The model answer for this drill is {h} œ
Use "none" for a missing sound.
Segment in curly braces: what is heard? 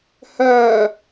h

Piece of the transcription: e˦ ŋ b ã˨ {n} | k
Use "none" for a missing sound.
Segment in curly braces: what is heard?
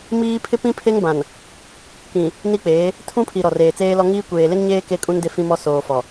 n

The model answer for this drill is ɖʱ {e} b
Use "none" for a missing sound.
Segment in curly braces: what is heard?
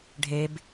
e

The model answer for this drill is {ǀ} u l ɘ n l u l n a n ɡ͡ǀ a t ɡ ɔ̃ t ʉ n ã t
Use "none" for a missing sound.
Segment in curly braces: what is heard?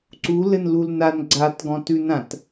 ǀ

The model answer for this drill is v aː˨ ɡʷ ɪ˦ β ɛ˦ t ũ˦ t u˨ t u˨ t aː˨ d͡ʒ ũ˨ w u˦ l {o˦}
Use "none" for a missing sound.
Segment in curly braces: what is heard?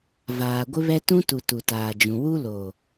o˨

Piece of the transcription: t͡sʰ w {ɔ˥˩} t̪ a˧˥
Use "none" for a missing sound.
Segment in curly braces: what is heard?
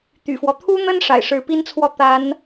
ɔ˥˩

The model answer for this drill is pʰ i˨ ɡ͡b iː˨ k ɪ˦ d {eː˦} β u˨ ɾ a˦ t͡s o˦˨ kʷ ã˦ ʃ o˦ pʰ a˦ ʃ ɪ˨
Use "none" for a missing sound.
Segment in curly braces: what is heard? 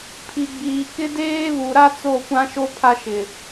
eː˦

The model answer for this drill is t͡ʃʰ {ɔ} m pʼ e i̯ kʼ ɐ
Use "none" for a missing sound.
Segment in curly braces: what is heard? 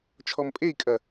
ɔ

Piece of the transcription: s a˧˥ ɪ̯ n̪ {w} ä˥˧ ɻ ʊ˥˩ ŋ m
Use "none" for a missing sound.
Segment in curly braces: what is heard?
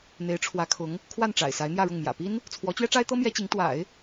j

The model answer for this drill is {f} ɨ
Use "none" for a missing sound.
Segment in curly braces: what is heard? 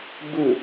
b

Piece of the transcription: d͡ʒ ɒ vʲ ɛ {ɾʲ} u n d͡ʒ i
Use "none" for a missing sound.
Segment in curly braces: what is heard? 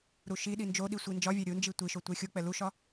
ɾʲ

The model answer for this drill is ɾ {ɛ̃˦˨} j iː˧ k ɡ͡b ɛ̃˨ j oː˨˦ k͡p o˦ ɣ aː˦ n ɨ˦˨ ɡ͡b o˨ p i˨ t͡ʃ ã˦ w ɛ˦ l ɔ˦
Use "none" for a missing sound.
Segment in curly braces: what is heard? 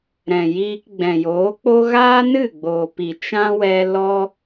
ɛ̃˨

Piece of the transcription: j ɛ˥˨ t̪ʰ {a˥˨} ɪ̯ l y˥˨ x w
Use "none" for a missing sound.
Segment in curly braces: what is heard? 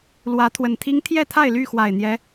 a˥˨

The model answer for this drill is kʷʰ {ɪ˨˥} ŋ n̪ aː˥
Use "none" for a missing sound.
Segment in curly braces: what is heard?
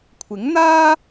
ɪ˨˥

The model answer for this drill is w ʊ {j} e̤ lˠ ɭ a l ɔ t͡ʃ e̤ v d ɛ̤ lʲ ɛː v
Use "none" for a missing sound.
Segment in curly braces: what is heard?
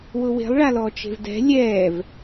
w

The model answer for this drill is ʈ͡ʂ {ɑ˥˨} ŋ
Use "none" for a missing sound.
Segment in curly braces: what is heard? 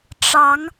ɑ˨˦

